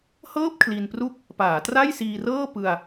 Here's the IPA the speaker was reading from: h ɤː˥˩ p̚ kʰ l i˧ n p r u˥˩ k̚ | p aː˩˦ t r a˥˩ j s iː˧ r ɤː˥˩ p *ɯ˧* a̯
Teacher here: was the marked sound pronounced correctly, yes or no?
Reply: yes